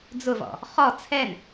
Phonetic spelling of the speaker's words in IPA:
d͡z ʊ v ɔ̰ | χ ɔ t͡sʰ ɛ n

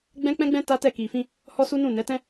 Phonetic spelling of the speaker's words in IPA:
ɡ͡b ɛ̃˦ k͡p ɛ̃˦ ɡ͡b ɛ̃˦ t a˦ t ɛ˦˨ k i˨ f ĩ˧ | h ɔ˦ s u˦ n ũ˦˨ n ɛ˨˦ t ɛ̃˦

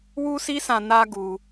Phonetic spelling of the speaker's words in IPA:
w u˦ s i˦ s ã˧ n a˦ ɡ u˧

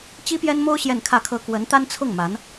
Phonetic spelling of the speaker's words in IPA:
t͡ɕ i˥ p j ɛ˥ n m o˥ ʊ̯ ɕ j ɛ˥˧ n kʰ ä˥˩ kʰ ɤ˥ k w ə˧˥ n t̪ a˥ n t͡sʰ ʊ˥˩ ŋ m a˧˥ n

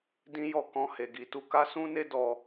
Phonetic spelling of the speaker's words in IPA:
d ĩ˦ j ɔ˦˨ k ɔ̃˧ h e˨ ɡ i˨ t u˧ k a˦ s ũ˦ n e˦ d ɔ˧

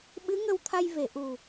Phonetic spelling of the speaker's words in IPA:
ɓ ɨ˧˥ ŋ ə˧ w t̪ʰ a˧ j v e˨˩˨ ʔ u˨˩

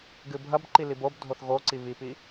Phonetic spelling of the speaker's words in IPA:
ɡ ɨ bʱ ɐ b ǃ i l i b o b dʱ o θ ɣ o ǀ i β i p i

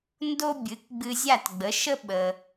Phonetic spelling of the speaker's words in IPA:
n d o˥ bʲ ɨ˩˥ k ɡ͡b ɨ˧ zʲ a˥˩ t ɡ͡b ə˩˥ ʃ ə˥ ɓ ə˩

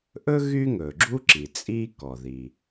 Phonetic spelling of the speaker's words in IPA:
ʔ ɵ˥ ɣ y˥ ŋ ɵː˩ ɡ͡ǁ u˥ ǁ i˩ t͡sʼ iː˥ k ɔ˩ ð i˩

